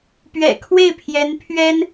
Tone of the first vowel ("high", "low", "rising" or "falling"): low